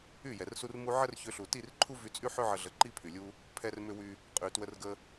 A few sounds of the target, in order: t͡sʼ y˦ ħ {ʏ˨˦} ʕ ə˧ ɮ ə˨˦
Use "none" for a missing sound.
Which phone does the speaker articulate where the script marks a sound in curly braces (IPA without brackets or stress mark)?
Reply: ʏ˦